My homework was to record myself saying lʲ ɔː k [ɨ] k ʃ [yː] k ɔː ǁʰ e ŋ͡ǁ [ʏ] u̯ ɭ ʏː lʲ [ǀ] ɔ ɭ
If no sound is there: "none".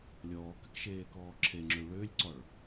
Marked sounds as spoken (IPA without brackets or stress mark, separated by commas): ɨ, eː, ʏ, ǀ